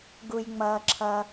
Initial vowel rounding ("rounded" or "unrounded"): rounded